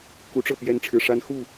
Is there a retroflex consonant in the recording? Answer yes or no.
yes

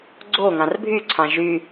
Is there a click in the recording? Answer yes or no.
yes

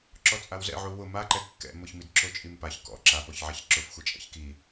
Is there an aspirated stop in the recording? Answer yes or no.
no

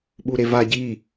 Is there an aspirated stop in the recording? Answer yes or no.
no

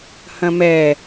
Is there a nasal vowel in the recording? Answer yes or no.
yes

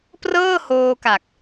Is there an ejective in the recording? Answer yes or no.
no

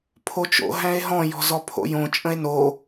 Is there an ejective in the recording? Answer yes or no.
yes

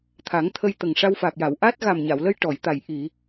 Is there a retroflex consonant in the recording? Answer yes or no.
yes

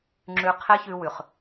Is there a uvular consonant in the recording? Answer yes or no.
yes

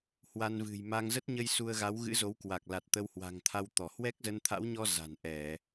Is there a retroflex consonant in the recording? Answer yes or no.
no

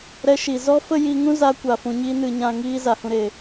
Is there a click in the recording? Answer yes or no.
no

